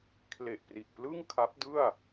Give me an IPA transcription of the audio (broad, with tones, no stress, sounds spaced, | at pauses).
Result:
kʰ l e˨˩ ʔ p r i˨˩ ʔ p l ɯ˥˩ ŋ kʰ a˦˥ p̚ d ɯ˥˩ a̯